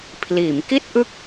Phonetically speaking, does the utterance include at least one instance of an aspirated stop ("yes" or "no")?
yes